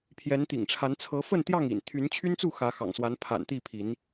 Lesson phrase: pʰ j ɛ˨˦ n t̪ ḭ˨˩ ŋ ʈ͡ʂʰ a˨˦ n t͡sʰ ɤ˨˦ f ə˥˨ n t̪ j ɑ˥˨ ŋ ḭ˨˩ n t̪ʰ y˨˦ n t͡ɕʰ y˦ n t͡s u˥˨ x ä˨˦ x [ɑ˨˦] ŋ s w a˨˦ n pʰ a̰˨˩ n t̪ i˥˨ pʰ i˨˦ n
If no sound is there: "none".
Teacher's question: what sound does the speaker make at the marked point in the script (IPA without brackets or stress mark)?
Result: ɑ̰˨˩